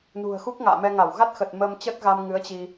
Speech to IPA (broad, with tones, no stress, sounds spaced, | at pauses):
n ṳ˨˩ ə̯ x u˦˥ k̚ ŋ a̰ː˧˨ m ɛ˧ ŋ a˧˩ w ɣ a˦˥ t̚ x ə˨˩ t̚ m əː˧ m t͡ɕ ə˦˥ t̚ ɣ a˧ m ŋ ɨ˨˦ ə̯ t͡ɕ i˧